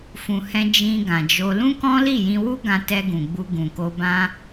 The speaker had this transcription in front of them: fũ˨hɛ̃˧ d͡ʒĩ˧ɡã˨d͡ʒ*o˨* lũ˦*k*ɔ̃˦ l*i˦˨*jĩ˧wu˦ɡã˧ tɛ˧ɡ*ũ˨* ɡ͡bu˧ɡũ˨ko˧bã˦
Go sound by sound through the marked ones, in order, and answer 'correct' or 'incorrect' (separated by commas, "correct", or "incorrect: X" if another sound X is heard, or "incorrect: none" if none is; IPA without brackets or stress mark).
incorrect: o˧, correct, correct, correct